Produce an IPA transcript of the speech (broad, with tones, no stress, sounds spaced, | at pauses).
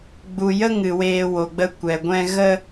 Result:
ɡ͡b u˨ j ə˦ ŋ ɨ˨ w eː˧ w o˨ ɡ͡b ə˦ kʷ ɛ˨ ɡʷ ɛ̃˦ ɣ ə˦